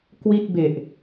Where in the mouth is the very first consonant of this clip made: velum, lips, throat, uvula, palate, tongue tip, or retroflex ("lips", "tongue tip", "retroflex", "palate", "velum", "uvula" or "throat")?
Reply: velum